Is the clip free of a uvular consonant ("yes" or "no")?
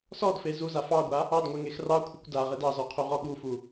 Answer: no